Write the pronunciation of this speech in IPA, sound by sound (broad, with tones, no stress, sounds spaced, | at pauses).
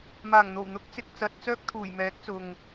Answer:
m aː˨˩ ŋ n̪ o˨˩ w n̪ ʊ˨˥ k̚ t͡s ɪ˨ k̚ t͡s ɐ˨ t̚ t͡s œː˥ k̚ t̪ʰ uː˨˩ j m ɛː˨˥ k̚ t͡s ʊ˨ ŋ